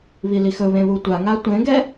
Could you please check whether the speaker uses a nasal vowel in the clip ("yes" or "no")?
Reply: yes